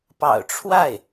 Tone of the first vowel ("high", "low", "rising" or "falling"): low